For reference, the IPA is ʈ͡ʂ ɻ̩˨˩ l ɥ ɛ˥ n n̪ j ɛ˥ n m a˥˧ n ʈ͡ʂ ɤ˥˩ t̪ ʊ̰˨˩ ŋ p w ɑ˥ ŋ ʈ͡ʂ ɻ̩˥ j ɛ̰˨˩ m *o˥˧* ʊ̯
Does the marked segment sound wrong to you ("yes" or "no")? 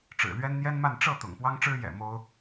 yes